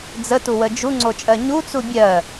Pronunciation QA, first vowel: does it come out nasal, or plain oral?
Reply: oral